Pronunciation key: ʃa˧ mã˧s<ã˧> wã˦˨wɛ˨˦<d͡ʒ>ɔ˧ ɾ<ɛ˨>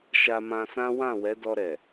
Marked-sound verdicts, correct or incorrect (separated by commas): incorrect, incorrect, correct